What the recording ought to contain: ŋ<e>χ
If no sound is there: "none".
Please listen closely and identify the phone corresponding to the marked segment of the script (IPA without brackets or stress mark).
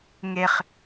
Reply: e